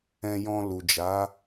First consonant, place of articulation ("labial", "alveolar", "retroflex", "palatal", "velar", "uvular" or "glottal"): palatal